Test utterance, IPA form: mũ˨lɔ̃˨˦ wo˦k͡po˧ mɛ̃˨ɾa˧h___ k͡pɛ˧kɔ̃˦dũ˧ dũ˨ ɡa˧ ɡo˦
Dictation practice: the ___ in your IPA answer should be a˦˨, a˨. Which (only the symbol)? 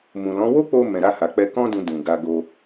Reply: a˨